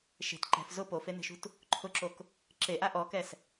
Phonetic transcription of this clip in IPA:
ʃe̤t ǃɛ̤f zʊ pofen̪e̤ʃṳt | ǃʰʊǁok | ǁeʔa ʔɔkɛs

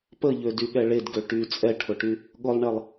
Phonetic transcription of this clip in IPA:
pəʎødyɠɛ ɭedɡø ʈy t͡sʼɛʈʰʊʈy | ɠʊlˠɳɛlˠ

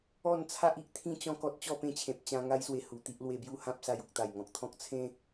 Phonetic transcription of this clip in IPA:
ɔ˥˧n t͡sʰa˦ʔi˨ʔt̪ʰĩ˥˧ t͡ɕɔ̃˥˧kɔ˦t̚ t͡ɕɔ˥˧pẽ˥˧t͡ɕʰẽ˨p̚ t͡ɕã˧ ŋa˦jswe˧ hu˨˩t̪i˦ʔ lwe˧bju˥˧ hã˦p̚sa˧j u˨k̚t̪a˨˩jŋɔ̃˨k̚t̪ʰɔ̃˦k̚ t͡sʰẽ˦

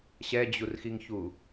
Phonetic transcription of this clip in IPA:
ɕɛd͡ʑurxiŋçu

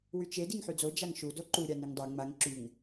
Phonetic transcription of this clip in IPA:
wyt͡ʃe diŋħyd͡zo d͡ʒaŋʃu doǃu ɾʲaniŋdˤy ŋ͡maŋ ǁyŋ

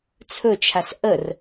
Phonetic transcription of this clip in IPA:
t͡sʰɵt͡ʃʰas ʔər

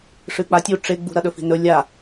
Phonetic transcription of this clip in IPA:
ʂɨk͡patʲu ʈ͡ʂeɡ͡bṳɾɐ ɗɵfi̤nɵ lʲa

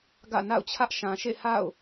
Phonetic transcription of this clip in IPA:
ɡä̰˦˨na̰˦˨ʊ̯t͡ɕʰä˦ʔ ʃã˨ʃḛ˦˨ha̰˦˨ʊ̯

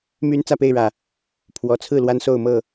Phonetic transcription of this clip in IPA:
my˦n t͡sä˥˨pe˥˨ɪ̯ɻä˨˩ | pʰwɔ˨˦ t͡sʰɹ̩˥˨ lwa˦nso˥˨ʊ̯mɤ˥˨

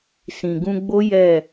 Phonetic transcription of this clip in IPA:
sĩ˨ɡũ˧ɡ͡bo˦ jɛ˦˨

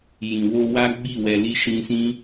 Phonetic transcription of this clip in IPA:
jĩ˨wo˧ wa˦ ɡ͡bi˦˨wɛ˧li˦ ʃĩ˧sĩ˦

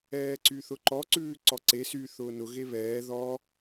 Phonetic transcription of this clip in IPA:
ɛːǀyθʊǃɔ ǀʉːǀɔǀe sy θʊːnʊ ɣeβɛː ðɔ

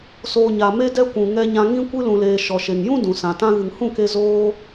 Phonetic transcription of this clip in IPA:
soː˨ɲa˨me˧dɛ˧ kʷũ˨ ŋɛ˧ɲã˧ ŋĩ˦ kʷɨ˧lũ˨leː˨ ʃɔ˨ʃe˨ŋjũ˦ dũ˨sã˨ tã˧ɣɨ˨ŋhũ˦˨ke˧ zoː˧

